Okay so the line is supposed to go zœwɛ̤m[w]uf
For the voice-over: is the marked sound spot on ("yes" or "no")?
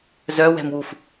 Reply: yes